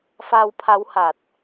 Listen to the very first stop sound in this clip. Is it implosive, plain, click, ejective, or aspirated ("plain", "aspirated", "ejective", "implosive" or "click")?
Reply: aspirated